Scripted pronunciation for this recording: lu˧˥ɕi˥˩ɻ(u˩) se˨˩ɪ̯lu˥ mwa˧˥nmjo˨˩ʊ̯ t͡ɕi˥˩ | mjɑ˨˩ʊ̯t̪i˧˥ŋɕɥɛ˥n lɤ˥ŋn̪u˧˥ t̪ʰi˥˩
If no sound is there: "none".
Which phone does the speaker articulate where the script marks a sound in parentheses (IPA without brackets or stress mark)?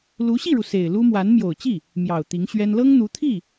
u˩